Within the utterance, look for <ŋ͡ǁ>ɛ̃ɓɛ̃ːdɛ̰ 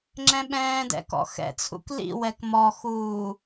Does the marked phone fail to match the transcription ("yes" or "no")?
no